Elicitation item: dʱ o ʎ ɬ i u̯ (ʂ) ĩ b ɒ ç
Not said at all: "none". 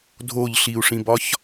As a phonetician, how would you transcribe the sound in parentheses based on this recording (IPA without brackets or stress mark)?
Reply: ʂ